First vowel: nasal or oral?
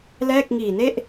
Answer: oral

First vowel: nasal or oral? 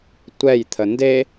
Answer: oral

